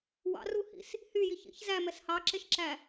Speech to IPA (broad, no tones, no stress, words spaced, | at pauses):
wɑ̰ruhḭs | hyji çḭç zæmɛs hɑǁeʃǁæ